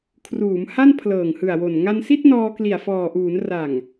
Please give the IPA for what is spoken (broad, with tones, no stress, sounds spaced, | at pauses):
kʰ r uː˩˦ m h a˥˩ n pʰ l ɤː˨˩ ŋ h ɯ˨˩ a̯ w o˨˩ n ŋ a˧ n s i˥˩ t̚ n ɔː˧ k l i˨˩ a̯ f ɔː˨˩ ʔ uː˩˦ n r a˨˩ ŋ